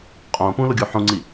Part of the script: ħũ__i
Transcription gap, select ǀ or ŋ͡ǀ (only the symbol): ŋ͡ǀ